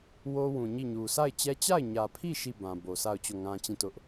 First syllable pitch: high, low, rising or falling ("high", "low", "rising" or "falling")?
high